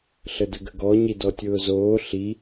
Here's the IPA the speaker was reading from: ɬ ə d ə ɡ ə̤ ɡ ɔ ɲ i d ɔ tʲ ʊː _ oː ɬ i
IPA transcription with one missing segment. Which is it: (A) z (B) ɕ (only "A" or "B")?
A